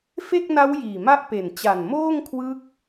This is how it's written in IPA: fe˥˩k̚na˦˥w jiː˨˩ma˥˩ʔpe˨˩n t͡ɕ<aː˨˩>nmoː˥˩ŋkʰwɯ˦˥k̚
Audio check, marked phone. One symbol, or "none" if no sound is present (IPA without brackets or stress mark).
a˨˩